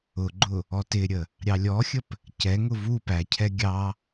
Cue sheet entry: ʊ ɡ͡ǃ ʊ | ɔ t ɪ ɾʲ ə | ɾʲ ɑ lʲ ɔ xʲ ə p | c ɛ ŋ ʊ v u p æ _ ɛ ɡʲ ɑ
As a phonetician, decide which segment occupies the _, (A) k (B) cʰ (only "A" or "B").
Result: B